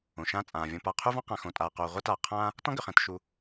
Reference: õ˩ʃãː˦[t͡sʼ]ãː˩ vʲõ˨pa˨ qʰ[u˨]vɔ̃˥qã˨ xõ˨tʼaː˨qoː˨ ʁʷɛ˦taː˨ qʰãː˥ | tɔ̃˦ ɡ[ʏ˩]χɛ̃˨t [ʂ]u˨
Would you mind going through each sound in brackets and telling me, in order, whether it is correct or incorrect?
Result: correct, incorrect: u˥, correct, incorrect: ʃ

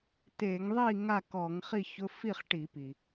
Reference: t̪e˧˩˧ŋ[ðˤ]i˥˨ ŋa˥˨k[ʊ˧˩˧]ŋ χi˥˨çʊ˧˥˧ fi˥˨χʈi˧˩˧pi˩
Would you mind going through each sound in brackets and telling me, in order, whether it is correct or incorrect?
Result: correct, incorrect: ɔ˧˩˧

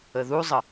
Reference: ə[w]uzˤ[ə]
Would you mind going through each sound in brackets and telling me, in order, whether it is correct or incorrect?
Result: incorrect: ð, correct

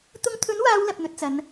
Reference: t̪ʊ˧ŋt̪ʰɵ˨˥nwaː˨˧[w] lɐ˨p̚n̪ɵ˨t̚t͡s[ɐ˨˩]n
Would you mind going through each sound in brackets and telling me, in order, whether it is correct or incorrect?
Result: correct, incorrect: ɐ˨˧

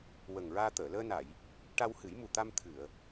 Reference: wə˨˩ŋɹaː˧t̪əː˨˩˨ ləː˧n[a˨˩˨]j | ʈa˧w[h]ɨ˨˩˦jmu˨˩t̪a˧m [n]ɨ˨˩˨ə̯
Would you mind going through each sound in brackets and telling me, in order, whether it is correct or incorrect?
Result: correct, correct, incorrect: t̪ʰ

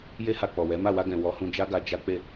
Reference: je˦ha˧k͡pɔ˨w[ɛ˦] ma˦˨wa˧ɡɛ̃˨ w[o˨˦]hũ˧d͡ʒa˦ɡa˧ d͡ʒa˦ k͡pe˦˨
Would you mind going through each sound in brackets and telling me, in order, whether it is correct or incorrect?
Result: incorrect: ɛ˨˦, incorrect: ɔ˨˦

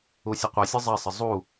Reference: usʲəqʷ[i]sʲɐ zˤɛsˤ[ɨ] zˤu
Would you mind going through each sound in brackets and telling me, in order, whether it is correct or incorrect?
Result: incorrect: e, incorrect: ə

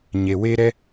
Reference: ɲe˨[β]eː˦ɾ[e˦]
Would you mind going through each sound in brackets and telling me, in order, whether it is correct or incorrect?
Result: incorrect: w, incorrect: ɛ˦

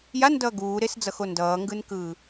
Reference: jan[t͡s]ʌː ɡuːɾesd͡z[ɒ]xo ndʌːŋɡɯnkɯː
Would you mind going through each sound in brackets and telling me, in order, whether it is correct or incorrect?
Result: incorrect: d, incorrect: ʌ

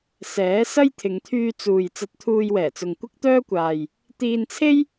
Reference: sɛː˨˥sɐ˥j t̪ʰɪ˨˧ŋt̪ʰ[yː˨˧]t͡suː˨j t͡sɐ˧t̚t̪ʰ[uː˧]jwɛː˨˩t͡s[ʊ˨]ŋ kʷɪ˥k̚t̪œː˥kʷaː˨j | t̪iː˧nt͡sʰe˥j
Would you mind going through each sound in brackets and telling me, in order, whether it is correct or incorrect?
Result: incorrect: yː˧, correct, correct

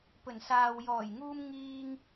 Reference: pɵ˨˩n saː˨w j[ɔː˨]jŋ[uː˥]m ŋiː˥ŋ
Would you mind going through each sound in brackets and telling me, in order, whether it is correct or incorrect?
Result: incorrect: ɔː˨˩, correct

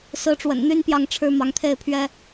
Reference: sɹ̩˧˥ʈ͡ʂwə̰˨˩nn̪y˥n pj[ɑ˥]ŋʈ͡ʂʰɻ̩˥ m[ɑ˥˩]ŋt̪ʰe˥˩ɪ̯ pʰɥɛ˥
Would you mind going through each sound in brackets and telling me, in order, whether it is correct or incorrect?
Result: incorrect: ɑ˥˩, incorrect: ɑ˧˥

